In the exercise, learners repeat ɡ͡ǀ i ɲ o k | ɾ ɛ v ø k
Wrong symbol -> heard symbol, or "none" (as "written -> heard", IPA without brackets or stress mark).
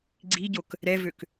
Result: ɲ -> ɟ